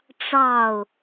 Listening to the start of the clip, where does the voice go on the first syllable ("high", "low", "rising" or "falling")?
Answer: falling